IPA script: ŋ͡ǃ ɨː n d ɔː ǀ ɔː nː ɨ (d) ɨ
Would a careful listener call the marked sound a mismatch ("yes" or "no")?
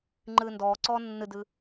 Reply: no